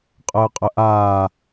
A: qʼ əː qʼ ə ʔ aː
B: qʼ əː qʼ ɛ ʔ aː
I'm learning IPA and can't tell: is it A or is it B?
A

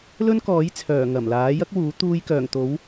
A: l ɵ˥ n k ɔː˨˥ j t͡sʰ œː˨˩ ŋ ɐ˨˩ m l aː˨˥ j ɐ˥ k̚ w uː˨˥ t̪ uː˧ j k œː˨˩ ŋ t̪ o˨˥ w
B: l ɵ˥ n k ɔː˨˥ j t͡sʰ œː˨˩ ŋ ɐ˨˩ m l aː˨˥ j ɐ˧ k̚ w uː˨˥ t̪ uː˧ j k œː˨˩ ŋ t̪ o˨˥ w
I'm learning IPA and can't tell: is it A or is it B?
A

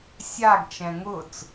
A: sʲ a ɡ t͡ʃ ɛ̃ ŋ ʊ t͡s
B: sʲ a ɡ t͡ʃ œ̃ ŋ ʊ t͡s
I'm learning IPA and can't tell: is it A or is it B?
A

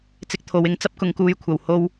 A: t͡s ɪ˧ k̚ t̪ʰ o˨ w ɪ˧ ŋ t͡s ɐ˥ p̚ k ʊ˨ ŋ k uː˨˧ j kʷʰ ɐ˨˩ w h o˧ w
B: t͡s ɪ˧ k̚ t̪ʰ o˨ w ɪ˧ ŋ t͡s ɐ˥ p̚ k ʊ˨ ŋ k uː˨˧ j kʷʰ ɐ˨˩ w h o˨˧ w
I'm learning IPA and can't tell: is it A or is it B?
A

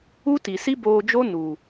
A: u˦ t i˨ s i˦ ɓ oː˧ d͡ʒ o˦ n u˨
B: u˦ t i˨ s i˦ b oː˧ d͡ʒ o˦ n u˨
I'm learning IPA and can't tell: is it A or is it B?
B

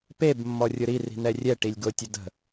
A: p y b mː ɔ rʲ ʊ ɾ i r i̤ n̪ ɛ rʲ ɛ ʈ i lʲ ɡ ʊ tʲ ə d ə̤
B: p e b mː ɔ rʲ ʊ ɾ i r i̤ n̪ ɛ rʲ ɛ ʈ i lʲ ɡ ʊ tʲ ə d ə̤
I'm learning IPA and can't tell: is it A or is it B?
B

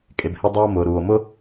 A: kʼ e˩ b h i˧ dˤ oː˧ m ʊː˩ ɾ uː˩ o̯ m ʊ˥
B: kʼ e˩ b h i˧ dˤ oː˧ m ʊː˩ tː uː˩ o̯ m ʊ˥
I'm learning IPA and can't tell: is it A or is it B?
A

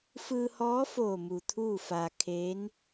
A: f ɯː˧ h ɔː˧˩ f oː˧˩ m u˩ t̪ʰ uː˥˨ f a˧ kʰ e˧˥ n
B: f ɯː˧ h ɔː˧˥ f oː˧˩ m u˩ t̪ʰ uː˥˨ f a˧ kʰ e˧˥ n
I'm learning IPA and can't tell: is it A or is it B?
B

